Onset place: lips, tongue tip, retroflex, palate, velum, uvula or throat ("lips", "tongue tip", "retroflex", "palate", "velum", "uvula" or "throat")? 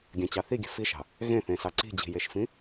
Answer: velum